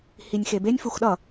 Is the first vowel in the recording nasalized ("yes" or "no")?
no